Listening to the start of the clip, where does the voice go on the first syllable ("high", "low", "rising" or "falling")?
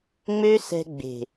high